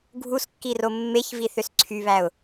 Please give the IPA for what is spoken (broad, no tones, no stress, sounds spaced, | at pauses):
ɡʱ u s kː i r o mː e ç v i θ ø s ǀʰ y β æ ʊ̯